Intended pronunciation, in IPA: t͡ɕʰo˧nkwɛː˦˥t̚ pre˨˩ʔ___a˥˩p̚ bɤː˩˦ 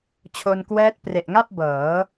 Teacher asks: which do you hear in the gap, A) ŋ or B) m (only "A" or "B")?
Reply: A